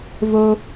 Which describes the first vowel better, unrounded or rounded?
rounded